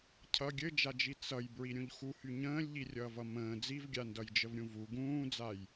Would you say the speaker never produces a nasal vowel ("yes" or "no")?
no